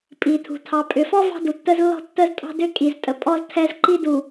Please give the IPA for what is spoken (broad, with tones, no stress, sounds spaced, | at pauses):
pʼ i˨ tʰ ṳ˨ tʰ ɑ˨ pʼ ʏ˨ f ɔ˦ v ɑ̤˦ d u˨ tː ə˦ z lː ɔ̤˦ tː ə˦ z tʼ ɑ̤˦ d ʏ˦ kʼ i˨ z tʼ ə˨ pʼ ɔ˦ z tʰ ɛ˦ z ǃ i˦ d u˨